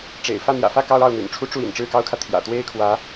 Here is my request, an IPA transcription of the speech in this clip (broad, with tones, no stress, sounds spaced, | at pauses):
ʈ͡ʂ ḛ˨˩ ɪ̯ f ä˥˩ n̪ j ä̰˨˩ f ä˥˩ k ɑ˥ ʊ̯ ɑ˥˩ ʊ̯ n̪ y̰˨˩ n ʈ͡ʂʰ u˥ ʈ͡ʂ u˥˩ ḭ˨˩ n ʈ͡ʂ ɻ̩˥˩ k ɑ˥ ʊ̯ kʰ ä˨ t̪ʰ j ä̰˨˩ t̪ w e˥˩ ɪ̯ kʰ w ä˧˥